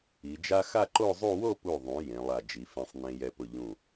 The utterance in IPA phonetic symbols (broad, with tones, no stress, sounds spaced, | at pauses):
i˩˧ d͡ʒ a˥ x a˥˧ ǃ o˥˧ zˤ u˥˧ w o˥˧ p u˧˩ ðˤ ũ˩˧ j ẽ˩˧ lˠ a˧˩ d͡ʒ i˩˧ f ẽ˧ sˤ n ẽ˧ j ɛ˧ p ʊ˧˩ ʎ ũ˧˩